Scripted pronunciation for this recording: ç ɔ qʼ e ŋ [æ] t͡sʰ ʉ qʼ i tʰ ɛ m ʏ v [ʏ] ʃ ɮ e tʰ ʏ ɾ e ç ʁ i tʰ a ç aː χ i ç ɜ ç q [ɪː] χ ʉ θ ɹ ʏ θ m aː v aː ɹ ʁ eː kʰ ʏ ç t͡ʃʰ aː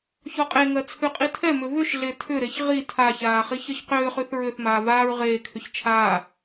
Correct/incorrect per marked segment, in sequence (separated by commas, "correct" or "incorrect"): incorrect, correct, incorrect